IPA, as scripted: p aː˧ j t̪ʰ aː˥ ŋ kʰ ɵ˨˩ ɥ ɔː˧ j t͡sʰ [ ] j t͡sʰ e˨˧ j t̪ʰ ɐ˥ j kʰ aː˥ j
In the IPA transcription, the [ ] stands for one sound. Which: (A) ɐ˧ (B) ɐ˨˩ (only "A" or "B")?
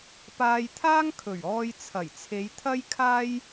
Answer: B